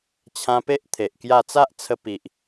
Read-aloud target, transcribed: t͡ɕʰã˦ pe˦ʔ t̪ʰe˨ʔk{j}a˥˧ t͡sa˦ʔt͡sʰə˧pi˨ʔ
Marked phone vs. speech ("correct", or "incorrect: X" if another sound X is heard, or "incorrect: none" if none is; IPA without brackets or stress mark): correct